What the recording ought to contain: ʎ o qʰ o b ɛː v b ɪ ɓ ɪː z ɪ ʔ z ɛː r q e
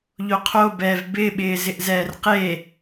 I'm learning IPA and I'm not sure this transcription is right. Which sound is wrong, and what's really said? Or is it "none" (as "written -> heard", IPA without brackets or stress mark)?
none